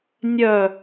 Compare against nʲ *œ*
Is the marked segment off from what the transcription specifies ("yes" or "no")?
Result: no